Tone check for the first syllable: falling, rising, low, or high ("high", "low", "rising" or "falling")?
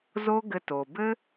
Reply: high